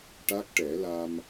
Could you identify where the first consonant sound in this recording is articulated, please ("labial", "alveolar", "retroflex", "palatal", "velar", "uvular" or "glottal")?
retroflex